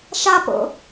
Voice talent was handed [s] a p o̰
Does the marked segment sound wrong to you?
yes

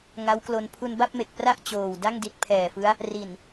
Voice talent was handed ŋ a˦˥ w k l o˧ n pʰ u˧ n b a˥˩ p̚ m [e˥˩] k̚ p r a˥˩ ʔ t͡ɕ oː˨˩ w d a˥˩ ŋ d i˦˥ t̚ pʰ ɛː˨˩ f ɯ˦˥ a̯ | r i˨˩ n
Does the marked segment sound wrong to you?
yes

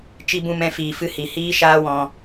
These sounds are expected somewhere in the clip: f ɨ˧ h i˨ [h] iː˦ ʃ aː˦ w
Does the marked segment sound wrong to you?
no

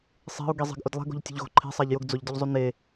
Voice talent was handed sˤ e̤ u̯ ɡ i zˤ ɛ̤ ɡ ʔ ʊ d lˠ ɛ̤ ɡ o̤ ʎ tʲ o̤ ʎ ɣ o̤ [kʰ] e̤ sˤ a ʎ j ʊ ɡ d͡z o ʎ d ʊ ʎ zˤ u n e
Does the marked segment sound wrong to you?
yes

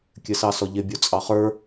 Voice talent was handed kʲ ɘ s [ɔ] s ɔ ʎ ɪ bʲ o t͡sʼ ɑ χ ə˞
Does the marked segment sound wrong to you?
yes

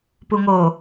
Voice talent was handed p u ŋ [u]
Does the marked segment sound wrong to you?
yes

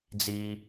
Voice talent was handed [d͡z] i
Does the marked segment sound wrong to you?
no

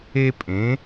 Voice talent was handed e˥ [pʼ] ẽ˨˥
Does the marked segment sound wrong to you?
no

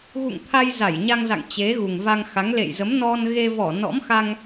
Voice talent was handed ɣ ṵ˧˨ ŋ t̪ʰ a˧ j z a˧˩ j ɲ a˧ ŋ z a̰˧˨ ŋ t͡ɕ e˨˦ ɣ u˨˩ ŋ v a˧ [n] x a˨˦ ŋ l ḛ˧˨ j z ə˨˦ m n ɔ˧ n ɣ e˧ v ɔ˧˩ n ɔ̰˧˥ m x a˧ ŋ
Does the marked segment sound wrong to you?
yes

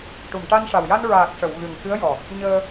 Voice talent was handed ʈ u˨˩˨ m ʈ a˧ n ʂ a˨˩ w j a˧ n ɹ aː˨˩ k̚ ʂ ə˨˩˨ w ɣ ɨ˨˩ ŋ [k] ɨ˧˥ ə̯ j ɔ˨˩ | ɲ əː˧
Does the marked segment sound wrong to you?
no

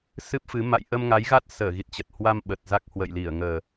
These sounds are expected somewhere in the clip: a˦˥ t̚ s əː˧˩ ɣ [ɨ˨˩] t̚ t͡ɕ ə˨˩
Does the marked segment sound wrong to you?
yes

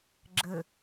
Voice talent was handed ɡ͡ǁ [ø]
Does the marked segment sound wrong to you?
yes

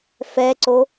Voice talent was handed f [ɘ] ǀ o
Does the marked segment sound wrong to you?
yes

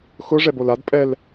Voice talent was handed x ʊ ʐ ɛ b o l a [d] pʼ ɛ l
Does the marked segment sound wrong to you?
no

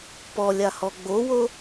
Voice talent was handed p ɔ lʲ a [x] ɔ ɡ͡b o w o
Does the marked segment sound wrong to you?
yes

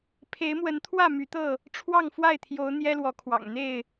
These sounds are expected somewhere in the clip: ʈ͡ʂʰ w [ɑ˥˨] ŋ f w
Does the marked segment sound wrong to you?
no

